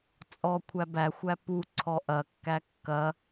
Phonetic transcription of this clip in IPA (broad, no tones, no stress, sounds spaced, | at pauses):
t͡sʼ ɔ kʷʰ æ b æ xʷ æ p u ǀʰ ɔ ʔ ɐ kː æ kː ɐ